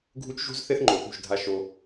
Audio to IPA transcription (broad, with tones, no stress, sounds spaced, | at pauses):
ɡʱ u˦ t͡ʃ ʒ ṳ˦ z θ e˦ θ ŋ͡ǃ o˨ θ ṳ˦˨ ʒ dʱ a˦ ʃ o˦